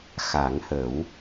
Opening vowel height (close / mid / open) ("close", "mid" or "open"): open